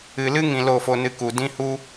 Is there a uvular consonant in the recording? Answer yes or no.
no